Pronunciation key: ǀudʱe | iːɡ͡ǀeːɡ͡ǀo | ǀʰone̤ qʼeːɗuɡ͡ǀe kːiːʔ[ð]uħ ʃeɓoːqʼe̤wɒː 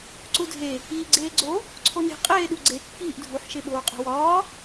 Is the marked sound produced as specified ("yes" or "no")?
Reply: no